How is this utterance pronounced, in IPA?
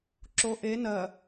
ǁ o ʔ e n ɜ

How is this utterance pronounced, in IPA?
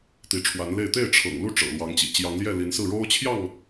t̪ i˨˦ ʈ͡ʂʰ w a˨˦ n l e˥˨ ɪ̯ t̪ e˥˨ ɪ̯ ʈ͡ʂʰ ɤ̰˨˩ ŋ l u˥˨ ʈ͡ʂ ɤ̰˨˩ l w ɑ˨˦ ŋ t͡ɕ ḭ˨˩ t͡ɕ j ɑ˨˦ ŋ l j ɛ˥˨ l i˨˦ n s ɹ̩˥˨ ɻ o˦ ʊ̯ t͡ɕʰ j ɑ˥˨ ŋ

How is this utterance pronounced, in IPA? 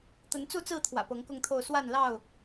t̪ ə˨˦ n t͡s u˥˨ t͡s ɹ̩˥˨ t̪ʰ w ä̰˨˩ p ɤ˨˦ ŋ k ʊ˥˨ ŋ t̪ʰ o˥˨ ʊ̯ s w a˥˨ n l ɑ˥˨ ʊ̯

